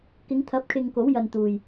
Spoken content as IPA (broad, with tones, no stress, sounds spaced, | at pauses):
k ɪ˨˧ ŋ t̪ʰ ɐ˨˥ p̚ kʰ ɪ˧ ŋ k o˨˥ w j ɐ˨ n t̪ uː˨ j